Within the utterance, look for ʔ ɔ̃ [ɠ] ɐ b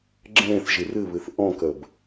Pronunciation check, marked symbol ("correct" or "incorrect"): incorrect